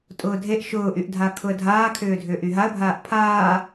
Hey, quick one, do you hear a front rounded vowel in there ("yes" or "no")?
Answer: yes